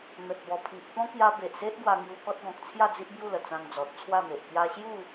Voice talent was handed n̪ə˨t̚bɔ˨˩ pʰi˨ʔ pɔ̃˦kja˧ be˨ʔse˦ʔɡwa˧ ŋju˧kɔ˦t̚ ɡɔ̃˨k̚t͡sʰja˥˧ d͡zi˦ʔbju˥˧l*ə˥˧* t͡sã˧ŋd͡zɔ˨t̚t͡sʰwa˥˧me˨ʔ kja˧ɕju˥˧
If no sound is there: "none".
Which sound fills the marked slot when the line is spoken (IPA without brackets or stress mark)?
ə˨˩